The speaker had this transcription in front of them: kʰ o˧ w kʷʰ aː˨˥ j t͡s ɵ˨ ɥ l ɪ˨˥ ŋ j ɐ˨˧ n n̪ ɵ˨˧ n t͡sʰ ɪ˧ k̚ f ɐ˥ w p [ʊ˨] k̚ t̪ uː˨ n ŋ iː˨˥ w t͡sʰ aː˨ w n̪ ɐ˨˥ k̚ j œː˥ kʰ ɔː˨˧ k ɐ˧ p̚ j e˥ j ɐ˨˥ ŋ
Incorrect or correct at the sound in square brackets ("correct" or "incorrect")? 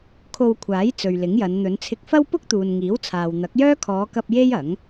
incorrect